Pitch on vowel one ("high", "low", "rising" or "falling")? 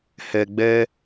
low